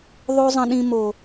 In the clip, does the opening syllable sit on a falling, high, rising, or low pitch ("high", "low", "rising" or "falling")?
high